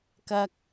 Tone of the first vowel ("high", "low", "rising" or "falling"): low